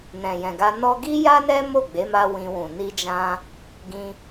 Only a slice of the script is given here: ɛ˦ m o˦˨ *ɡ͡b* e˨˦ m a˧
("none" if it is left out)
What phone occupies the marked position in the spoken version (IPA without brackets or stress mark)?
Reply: ɡ͡b